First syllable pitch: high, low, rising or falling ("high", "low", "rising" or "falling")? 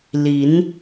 rising